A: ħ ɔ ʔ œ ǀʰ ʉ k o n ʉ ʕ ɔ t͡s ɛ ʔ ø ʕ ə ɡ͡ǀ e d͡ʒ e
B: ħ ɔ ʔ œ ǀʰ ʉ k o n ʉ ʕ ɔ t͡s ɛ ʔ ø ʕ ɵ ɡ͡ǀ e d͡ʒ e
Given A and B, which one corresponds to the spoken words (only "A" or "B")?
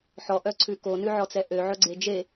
B